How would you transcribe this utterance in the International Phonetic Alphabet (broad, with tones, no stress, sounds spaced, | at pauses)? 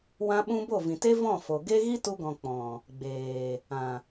w ã˧ ɓ ũ˧ b o˦˨ v ĩ˨ t e˦ v ɔ̃˦˨ f o˨ ɡ e˦ ɣ i˦ t u˧ ɡ ɔ̃˨ k͡p ɔ̃˨ | ɡ͡b eː˨ | ã˨